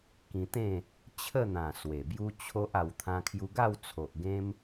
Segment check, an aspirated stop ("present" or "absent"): present